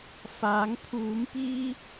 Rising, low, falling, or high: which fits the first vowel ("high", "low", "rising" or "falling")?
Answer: rising